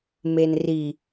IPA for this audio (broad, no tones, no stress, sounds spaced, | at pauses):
m e n r i